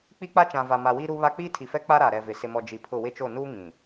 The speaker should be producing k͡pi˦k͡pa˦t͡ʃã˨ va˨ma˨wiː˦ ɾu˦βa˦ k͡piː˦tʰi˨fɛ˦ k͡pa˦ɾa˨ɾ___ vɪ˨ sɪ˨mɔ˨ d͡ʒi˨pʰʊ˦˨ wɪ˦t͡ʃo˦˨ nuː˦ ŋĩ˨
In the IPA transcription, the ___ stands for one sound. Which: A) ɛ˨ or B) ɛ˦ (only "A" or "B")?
A